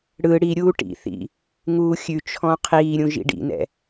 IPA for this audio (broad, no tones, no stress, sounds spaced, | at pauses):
ɽ ɯ ɽ i ɾʲ uː ʈ ḭ θ ḭ | ŋ uː xʲ ʉ t͡ʃʰ ɔ̃ qʰ iː ɾʲ ũ ʒ ḭ ɖ ḭ n ɛ̰